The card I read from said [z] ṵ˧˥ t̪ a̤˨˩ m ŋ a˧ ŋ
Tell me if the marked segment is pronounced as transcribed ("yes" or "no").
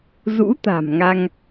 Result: yes